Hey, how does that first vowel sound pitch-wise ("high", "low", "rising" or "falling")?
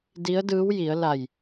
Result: rising